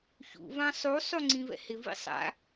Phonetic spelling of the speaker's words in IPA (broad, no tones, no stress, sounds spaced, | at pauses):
ç ṵ v ã sˤ u sˤ u ŋ͡ǀ ĩ v ɛ̰ h ɪ v ḭ sˤ a̰